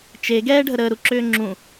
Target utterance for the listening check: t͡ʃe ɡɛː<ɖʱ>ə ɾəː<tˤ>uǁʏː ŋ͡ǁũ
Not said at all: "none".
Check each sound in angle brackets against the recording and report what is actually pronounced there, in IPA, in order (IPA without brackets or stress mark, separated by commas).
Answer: ɖʱ, ɾ